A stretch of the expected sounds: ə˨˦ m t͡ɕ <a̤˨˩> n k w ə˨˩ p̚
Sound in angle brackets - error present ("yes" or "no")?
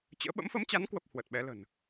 yes